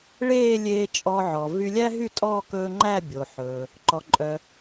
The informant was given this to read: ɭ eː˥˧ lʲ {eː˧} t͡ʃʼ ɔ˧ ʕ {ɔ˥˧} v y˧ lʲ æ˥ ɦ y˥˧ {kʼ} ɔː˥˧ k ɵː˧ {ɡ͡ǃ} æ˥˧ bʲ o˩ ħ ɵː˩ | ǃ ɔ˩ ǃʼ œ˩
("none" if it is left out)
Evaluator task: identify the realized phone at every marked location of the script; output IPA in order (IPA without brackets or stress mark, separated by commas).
eː˧, ɔ˩, tʼ, ŋ͡ǃ